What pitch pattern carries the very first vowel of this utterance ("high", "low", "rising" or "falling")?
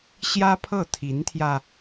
high